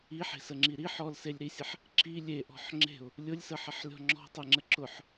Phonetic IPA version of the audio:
i ħ e̤ s ə ŋ͡ǁ i ɾ i ħ ɔ l s e lʲ ɾ i sʲ ə ħ | ǁ i lʲ e ʔ ɔ̤ ħ ŋ͡ǁ e̤ ʊ̯ | lʲ ʊ lʲ s ə ħ ə ħ lʲ ɔ̤ ŋ͡ǁ ɔ̤ tˤ e ŋ͡ǁ ə ǁ ʊ ħ

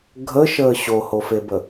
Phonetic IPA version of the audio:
ɡʱ ə ʃ əː ɕ o h o f e b ə

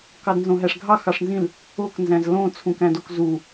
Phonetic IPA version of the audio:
k ɑ d n z õ ɦ æ ʂ ɡʱ ɑ x ɑ ʂ n z ĩ l | o k n z æ̃ z l õ t͡sʰ ũ k æ̃ d o k z u

